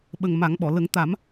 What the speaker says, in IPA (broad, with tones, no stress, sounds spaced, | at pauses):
ɓ ə˨˩ ŋ m a˨˩˦ ŋ ɓ ɔ˨˩˨ l ə˨˩˦ ŋ t̪ a˨˩˦ m